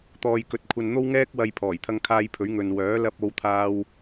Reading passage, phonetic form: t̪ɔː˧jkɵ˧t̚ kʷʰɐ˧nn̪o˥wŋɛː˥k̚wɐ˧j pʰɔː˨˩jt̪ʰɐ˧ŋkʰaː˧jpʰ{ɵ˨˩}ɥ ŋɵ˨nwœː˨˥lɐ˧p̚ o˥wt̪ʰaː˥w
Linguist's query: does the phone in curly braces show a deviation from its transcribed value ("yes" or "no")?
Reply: yes